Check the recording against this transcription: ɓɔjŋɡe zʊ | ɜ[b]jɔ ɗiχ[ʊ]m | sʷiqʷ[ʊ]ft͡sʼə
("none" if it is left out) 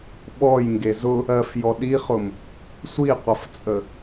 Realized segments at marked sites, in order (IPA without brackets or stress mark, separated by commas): f, ʊ, ə